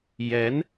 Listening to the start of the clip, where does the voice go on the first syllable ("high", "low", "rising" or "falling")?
rising